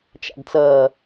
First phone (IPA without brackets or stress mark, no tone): t͡ʃ